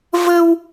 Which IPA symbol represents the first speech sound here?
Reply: v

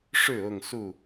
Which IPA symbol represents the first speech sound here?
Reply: ʂ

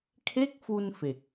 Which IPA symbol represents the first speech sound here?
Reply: kʰ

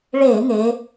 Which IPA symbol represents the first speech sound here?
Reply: ɭ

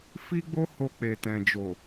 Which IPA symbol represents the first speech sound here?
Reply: f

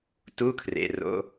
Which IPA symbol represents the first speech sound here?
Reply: t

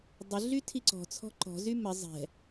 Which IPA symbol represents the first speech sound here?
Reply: dˤ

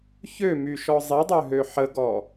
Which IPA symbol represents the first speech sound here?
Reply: ç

